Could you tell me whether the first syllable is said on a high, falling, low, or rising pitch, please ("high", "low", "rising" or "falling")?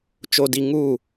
low